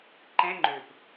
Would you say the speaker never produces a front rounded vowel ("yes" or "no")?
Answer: no